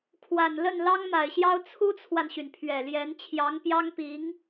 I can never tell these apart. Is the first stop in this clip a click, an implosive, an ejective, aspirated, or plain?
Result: aspirated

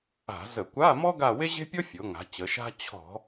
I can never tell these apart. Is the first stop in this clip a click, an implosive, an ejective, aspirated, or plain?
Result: plain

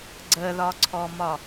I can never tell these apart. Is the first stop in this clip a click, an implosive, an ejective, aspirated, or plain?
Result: click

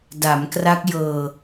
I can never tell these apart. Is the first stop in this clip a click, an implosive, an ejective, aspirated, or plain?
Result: plain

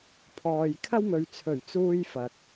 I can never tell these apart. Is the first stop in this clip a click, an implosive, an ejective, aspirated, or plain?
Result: aspirated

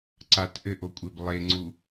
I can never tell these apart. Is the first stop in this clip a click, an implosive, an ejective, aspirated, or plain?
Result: click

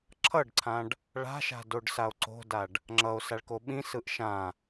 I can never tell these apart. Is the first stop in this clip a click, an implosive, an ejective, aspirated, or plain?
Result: click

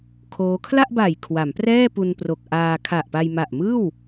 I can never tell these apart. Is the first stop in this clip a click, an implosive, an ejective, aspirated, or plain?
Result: aspirated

